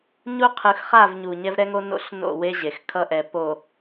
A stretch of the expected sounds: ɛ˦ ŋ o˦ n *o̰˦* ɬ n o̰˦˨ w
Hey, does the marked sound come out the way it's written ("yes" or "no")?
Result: yes